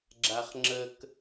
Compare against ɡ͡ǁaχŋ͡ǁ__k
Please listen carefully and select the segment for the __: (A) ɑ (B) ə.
B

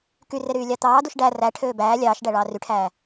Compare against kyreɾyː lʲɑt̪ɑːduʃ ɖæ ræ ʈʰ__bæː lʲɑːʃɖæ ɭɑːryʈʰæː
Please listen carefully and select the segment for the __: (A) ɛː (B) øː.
B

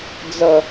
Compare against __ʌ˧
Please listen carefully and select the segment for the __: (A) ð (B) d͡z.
B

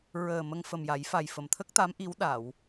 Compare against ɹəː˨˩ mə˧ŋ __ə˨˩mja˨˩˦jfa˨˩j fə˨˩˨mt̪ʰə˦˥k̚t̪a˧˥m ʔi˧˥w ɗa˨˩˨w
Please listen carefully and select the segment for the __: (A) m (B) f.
B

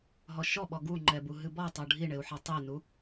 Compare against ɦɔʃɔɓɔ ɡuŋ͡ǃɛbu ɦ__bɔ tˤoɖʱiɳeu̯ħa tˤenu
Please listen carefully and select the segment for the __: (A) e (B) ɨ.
B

